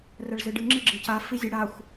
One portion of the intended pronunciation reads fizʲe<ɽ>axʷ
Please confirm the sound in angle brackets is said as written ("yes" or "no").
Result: yes